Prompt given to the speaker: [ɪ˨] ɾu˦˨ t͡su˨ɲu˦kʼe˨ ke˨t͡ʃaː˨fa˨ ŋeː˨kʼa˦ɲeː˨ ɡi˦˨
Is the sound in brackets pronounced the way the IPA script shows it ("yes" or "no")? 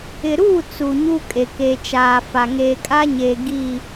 yes